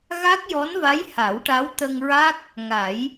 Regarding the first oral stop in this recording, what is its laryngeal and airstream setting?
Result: plain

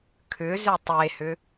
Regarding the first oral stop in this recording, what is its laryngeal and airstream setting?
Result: aspirated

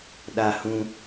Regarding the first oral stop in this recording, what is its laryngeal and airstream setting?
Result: implosive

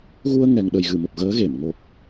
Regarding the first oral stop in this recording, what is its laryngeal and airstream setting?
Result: implosive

